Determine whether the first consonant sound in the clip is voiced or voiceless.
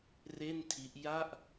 voiced